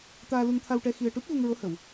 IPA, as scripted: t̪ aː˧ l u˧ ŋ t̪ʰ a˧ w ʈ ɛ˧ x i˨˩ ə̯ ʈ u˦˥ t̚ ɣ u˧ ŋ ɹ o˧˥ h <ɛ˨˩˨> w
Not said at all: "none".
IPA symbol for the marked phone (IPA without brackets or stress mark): ə˨˩˨